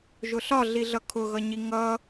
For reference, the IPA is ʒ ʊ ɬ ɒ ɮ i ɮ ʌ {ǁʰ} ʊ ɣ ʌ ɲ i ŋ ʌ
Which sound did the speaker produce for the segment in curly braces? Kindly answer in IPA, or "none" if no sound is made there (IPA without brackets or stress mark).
kʰ